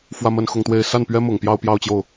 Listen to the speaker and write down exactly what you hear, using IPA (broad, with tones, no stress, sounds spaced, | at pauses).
f w ä˥˧ m ə˥˧ n x ʊ˥˧ ŋ t̪ w e˥˧ ɪ̯ s a˥˩ n p ɥ ɛ˥ m ʊ˨˩ ŋ p j ɑ˥˧ ʊ̯ p j ɑ˥˧ ʊ̯ t͡ɕ j o˥˩ ʊ̯